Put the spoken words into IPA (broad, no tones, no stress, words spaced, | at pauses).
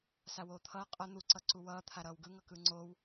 sawoːt̪ʰʌː qʼʌ n̪uǀʌǀu wʌː t̪ʰaɾʌːwɡɯŋʌ kɯŋ͡ǀow